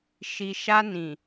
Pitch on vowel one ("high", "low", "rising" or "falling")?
low